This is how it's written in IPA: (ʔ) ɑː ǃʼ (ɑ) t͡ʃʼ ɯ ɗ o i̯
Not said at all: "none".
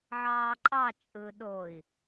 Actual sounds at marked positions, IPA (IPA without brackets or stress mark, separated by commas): ʕ, ɑ